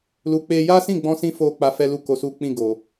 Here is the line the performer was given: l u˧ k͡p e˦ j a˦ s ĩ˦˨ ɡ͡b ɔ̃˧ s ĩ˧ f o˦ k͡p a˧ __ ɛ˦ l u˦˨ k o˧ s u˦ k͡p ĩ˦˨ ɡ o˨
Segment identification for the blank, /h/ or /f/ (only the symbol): f